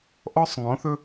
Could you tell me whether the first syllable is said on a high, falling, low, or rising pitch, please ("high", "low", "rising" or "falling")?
high